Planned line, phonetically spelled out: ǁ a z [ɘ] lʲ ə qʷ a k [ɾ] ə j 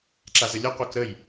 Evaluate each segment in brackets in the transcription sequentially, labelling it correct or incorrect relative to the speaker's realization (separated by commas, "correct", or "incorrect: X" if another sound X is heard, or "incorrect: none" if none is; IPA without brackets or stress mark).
correct, correct